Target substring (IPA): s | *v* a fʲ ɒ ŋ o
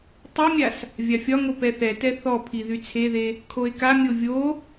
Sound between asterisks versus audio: incorrect: vʲ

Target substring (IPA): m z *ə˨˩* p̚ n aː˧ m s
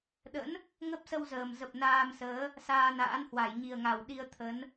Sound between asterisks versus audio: correct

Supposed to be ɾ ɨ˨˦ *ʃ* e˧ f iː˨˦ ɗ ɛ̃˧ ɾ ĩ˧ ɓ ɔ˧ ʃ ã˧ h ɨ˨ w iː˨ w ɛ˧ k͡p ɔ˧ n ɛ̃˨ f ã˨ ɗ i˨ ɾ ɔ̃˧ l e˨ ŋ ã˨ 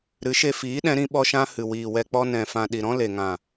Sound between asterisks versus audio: correct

